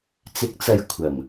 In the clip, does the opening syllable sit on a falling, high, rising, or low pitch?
rising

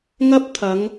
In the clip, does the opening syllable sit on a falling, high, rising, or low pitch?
high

